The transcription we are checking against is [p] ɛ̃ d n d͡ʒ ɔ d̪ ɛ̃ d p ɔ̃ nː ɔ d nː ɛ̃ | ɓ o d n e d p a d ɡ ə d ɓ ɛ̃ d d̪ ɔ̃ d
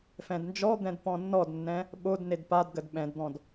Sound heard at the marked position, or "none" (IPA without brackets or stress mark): f